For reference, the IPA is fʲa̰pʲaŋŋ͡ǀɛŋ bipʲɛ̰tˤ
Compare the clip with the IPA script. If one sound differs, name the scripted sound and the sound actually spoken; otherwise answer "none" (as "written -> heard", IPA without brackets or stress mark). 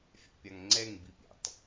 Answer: none